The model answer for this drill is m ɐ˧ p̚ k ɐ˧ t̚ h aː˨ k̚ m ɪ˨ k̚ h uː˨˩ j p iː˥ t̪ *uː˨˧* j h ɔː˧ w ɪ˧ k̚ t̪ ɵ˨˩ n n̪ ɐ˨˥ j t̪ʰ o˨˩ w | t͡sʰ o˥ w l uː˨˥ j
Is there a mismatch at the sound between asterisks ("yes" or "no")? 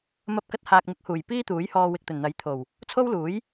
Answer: yes